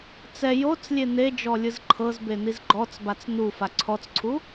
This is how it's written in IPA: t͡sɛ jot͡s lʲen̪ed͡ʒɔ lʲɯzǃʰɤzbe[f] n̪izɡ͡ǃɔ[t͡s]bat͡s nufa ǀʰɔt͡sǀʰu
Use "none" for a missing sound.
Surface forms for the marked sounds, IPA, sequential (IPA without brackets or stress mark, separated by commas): none, t͡s